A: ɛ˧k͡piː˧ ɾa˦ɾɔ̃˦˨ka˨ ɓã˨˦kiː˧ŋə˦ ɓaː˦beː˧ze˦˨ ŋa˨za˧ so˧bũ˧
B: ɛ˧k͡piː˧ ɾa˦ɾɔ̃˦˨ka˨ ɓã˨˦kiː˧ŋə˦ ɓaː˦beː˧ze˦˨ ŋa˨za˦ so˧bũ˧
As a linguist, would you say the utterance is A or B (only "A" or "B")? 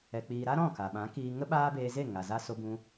A